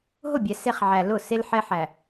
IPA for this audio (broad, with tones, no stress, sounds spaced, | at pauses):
ɦ ʊ˦˨ bʲ ɛ˨ s e˦ χ ʕ æ˨ l ʊ˦˨ s e˦ l ħ ɛ˦ ħ æ˨